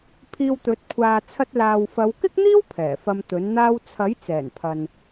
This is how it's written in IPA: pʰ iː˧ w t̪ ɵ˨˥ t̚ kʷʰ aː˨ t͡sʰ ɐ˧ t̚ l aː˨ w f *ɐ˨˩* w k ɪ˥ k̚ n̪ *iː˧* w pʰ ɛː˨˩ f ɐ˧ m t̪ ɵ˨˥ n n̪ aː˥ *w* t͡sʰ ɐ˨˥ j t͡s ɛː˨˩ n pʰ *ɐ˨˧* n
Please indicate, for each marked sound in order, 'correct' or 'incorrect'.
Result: incorrect: ɐ˨˧, incorrect: iː˥, correct, incorrect: ɐ˨

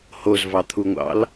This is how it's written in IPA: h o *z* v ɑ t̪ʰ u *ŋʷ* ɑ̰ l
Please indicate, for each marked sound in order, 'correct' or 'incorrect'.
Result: correct, correct

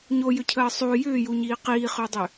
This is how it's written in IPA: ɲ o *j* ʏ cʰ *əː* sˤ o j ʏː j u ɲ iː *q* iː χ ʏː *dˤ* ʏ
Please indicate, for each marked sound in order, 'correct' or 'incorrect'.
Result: correct, correct, correct, correct

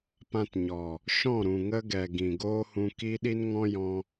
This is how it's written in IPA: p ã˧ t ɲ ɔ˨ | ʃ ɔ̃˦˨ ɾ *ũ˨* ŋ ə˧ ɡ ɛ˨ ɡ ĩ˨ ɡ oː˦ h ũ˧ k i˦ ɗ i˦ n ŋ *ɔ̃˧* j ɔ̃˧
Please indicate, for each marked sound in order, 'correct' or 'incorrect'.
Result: correct, incorrect: ɔ̃˦

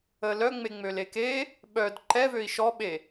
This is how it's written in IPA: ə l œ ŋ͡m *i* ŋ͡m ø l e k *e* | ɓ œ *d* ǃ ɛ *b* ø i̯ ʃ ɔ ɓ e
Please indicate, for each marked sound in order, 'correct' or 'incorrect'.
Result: incorrect: e, correct, correct, incorrect: v

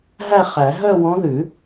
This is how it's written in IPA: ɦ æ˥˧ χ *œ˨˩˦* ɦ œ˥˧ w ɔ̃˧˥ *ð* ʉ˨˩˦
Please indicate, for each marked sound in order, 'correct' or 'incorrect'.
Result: incorrect: æ˨˩˦, correct

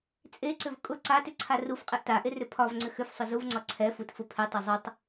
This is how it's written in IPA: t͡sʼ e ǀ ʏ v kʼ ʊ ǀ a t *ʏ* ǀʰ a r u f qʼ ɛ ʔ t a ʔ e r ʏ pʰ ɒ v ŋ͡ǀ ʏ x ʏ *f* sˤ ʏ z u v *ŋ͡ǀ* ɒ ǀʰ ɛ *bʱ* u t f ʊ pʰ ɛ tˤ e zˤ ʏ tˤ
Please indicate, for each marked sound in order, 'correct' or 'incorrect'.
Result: correct, correct, correct, incorrect: f

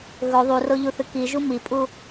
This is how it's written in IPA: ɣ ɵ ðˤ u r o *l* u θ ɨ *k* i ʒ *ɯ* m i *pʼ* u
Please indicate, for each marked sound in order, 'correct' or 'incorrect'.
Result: incorrect: ʎ, correct, incorrect: u, correct

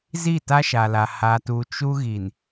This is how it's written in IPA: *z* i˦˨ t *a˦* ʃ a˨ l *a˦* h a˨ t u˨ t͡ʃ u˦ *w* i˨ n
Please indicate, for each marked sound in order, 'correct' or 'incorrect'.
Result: correct, correct, incorrect: a˨, incorrect: ɣ

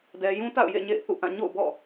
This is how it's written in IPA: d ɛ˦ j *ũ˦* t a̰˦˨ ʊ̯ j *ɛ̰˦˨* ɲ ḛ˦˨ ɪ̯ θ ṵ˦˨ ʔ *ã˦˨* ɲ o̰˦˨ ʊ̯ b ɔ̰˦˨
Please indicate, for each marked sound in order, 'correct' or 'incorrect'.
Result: correct, incorrect: ḛ˦˨, correct

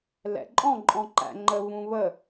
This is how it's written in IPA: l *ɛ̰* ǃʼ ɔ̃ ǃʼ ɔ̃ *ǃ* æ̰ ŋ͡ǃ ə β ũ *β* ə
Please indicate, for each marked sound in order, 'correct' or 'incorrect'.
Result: correct, correct, correct

